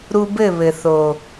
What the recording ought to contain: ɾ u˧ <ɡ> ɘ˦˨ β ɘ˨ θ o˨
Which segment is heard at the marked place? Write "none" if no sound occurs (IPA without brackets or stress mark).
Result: b